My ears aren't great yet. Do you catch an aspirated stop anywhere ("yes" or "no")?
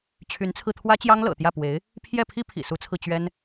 yes